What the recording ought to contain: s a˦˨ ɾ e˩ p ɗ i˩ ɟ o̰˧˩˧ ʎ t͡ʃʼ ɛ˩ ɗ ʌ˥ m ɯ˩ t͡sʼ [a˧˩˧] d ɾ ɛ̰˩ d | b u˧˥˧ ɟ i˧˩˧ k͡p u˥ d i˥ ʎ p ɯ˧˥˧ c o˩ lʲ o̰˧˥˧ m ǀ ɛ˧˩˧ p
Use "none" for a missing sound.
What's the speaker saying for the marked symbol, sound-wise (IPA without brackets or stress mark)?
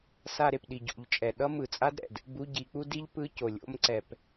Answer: a˥